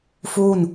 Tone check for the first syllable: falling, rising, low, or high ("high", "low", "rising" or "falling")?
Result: falling